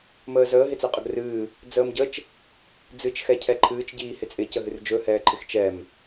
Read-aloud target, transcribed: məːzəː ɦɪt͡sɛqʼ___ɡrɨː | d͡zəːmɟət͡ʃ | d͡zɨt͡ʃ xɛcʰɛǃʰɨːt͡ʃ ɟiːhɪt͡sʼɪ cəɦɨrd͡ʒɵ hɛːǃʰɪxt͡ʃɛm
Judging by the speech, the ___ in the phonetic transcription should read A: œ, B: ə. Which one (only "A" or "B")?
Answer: B